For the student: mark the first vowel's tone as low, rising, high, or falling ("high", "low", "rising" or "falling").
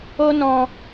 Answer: high